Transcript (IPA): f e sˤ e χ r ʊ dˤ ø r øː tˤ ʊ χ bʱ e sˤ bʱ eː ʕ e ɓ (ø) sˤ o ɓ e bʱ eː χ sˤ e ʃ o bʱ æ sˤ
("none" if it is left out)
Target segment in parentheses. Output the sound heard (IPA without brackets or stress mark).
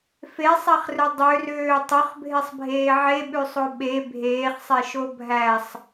ʉ